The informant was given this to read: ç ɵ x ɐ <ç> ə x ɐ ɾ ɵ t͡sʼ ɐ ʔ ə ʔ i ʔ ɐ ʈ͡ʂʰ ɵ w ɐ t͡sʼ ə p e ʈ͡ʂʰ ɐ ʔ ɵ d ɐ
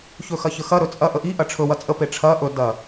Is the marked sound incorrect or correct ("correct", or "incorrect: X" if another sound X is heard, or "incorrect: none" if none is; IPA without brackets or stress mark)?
correct